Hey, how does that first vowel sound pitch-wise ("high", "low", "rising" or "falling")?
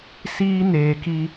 high